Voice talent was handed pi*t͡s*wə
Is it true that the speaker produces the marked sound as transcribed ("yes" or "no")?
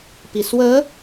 no